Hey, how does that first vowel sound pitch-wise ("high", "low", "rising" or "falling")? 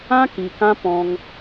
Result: high